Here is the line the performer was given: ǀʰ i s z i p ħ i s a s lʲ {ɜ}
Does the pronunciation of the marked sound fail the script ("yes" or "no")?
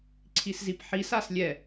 yes